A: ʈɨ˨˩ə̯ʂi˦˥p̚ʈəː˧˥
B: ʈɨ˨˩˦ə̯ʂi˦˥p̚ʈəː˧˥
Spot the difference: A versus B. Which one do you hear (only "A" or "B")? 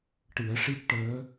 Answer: B